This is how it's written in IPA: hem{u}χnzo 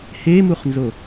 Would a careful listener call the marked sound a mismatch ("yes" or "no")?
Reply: no